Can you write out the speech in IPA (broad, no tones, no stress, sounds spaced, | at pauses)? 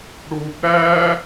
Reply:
ɽ u b ɾ æ